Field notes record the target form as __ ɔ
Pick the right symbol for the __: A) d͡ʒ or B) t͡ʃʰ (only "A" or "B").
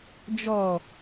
A